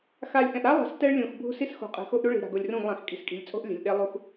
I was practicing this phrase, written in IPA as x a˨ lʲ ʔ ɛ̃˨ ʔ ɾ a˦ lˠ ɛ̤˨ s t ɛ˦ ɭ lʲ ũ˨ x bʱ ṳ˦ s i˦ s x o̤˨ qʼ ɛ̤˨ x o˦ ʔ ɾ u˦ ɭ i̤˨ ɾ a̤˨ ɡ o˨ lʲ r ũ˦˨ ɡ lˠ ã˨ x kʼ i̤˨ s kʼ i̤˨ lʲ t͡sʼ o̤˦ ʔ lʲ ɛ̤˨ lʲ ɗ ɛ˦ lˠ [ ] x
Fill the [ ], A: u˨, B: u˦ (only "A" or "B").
B